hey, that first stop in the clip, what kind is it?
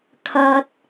aspirated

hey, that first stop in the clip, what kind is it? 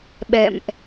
implosive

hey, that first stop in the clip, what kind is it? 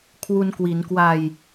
aspirated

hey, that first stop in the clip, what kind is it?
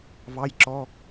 click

